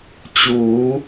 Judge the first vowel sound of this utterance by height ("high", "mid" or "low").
high